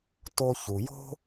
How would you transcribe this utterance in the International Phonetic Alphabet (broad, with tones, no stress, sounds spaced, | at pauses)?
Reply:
t o˧ ç u˩ j o̤˥